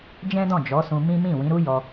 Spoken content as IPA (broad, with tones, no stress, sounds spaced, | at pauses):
d͡ʒ ɛ̃˦ d ɔ̃˦˨ d͡ʒ ɔ˨˦ s ũ˧ m ĩ˦ m ĩ˦˨ w ĩ˨˦ ɾ u˦ j ɔ˧